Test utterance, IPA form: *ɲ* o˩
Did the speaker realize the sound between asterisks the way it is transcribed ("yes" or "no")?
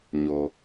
yes